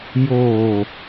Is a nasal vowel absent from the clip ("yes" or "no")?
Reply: yes